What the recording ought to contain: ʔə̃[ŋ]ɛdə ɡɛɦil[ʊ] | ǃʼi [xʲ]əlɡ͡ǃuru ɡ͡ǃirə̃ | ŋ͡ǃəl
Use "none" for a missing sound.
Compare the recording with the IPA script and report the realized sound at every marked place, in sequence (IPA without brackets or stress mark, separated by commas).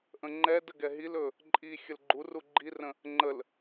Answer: ŋ͡ǃ, ɵ, xʲ